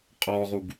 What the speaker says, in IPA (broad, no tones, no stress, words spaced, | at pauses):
qʼɔʁuɡ